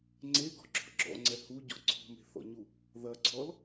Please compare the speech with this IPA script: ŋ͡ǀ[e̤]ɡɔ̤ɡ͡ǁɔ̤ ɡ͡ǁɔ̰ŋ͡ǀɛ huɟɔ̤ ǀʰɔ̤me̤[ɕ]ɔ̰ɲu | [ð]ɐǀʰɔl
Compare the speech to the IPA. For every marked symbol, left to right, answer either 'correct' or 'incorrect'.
incorrect: e, incorrect: θ, correct

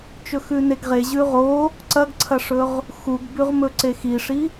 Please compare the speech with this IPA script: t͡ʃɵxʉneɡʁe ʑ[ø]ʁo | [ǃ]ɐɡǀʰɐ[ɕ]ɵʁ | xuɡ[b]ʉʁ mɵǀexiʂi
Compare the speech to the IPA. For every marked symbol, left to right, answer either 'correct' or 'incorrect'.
incorrect: ʉ, incorrect: ǀ, incorrect: ʂ, correct

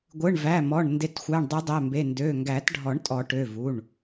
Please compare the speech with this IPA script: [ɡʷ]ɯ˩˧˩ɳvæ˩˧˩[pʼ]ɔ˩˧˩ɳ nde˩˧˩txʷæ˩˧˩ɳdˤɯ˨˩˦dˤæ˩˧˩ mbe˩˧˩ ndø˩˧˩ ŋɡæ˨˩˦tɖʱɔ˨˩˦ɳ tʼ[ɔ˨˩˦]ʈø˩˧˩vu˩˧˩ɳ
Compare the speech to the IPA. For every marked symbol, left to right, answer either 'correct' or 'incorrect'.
correct, incorrect: m, correct

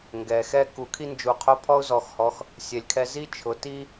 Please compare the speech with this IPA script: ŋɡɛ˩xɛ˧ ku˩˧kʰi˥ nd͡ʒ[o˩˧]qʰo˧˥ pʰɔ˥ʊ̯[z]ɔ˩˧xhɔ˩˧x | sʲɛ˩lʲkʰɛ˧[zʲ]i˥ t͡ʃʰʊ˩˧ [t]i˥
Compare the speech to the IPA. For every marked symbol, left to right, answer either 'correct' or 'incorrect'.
incorrect: u˩˧, correct, incorrect: z, correct

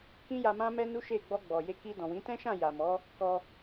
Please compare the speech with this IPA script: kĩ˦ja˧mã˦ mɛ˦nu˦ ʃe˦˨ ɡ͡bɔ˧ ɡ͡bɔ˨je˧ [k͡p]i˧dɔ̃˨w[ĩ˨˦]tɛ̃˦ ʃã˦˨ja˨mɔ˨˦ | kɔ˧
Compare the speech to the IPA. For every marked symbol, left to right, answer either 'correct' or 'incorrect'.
incorrect: k, correct

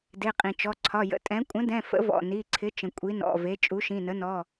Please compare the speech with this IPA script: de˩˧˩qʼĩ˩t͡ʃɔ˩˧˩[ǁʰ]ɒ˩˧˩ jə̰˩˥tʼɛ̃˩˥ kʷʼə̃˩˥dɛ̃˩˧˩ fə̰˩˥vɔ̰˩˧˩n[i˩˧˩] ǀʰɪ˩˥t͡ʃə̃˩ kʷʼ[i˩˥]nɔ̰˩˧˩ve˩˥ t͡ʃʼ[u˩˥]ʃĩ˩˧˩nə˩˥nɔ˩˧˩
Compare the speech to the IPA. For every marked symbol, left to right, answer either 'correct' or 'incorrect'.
incorrect: ǀʰ, correct, correct, correct

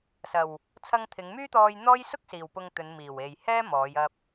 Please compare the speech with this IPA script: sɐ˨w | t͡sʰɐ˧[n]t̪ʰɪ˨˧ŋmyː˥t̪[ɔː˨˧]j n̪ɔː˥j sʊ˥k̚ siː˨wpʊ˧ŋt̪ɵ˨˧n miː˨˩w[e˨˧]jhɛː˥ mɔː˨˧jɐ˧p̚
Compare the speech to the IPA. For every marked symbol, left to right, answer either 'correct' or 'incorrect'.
incorrect: ŋ, incorrect: ɔː˧, incorrect: e˨

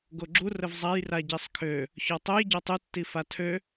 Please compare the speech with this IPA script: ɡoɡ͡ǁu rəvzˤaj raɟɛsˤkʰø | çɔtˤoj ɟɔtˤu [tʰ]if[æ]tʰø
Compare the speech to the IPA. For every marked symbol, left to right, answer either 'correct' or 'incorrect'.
incorrect: tː, incorrect: a

